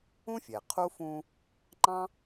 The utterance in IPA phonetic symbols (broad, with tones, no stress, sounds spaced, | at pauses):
ũ˥ fʲ ɛ˩ qʰ u˥ f ũ˦ | ŋ͡ǃ ɑ̃˥